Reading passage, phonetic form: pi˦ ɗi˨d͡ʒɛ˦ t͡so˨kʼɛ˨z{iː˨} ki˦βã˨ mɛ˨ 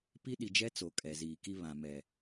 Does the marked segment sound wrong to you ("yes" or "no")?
no